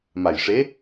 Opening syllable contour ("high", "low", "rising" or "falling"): low